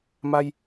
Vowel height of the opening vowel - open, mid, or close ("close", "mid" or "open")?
open